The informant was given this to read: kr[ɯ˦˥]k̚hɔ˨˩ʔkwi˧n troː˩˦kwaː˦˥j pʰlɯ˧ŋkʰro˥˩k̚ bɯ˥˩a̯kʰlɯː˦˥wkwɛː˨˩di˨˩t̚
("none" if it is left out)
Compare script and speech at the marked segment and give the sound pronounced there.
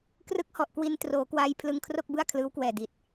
ɯ˦˥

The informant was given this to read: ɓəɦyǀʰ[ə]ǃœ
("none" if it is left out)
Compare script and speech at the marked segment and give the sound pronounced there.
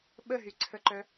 ə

